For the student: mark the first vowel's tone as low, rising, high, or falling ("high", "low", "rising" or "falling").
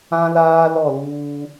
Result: high